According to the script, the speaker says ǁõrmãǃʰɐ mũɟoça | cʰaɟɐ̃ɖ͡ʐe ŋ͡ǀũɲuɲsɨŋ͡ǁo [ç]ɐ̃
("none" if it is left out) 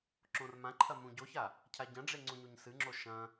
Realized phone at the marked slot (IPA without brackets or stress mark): ʃ